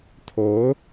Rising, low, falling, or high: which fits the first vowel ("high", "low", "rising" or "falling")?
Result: rising